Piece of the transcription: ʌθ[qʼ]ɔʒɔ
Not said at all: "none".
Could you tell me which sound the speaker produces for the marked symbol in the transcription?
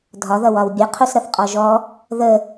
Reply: qʼ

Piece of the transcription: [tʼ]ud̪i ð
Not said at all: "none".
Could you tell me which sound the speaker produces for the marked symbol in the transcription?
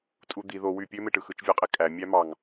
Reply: tʼ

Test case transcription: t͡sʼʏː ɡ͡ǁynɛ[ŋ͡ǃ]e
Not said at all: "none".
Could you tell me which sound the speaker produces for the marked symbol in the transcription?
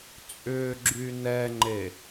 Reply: ŋ͡ǃ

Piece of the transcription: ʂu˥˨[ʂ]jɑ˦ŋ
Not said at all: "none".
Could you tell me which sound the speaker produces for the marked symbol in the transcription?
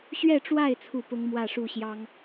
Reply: ɕ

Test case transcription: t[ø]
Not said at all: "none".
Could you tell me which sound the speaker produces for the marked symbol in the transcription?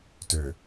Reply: ø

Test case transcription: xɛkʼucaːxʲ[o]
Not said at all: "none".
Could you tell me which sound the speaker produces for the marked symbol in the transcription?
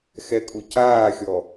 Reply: ɔ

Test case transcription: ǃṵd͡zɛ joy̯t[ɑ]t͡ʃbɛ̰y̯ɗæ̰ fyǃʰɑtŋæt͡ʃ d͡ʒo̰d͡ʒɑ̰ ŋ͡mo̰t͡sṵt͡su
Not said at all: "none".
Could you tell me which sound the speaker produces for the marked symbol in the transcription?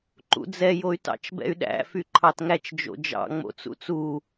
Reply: ɑ̰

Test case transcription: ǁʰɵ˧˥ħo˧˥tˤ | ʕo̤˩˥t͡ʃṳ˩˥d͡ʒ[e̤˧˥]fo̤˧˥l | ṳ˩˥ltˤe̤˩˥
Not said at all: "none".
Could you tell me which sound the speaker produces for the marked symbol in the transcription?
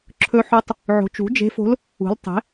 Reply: e̤˧˥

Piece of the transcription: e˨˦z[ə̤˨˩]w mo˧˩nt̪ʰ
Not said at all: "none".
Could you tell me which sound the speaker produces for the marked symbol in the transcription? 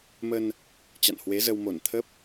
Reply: ə˧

